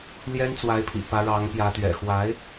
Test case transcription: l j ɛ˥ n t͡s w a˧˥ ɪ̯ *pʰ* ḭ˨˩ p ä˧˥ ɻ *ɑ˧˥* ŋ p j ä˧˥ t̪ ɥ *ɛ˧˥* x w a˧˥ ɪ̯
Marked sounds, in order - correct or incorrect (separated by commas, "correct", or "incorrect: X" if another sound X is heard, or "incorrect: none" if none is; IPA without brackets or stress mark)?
correct, correct, incorrect: ɛ̰˨˩